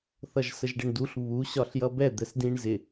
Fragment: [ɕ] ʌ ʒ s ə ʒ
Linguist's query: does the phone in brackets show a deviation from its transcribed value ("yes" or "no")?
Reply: yes